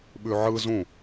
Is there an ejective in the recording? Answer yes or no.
no